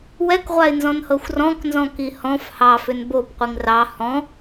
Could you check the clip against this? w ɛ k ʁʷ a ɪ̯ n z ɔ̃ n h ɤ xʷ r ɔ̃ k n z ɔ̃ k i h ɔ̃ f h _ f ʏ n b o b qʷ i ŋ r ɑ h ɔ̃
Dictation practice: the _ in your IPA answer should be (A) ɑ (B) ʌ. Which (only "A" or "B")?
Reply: A